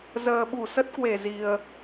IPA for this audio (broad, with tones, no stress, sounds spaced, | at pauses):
z əː˨˩ ɓ u˧˩ s ə˦˥ t̚ k w e˧˩ z i˨˩ ə̯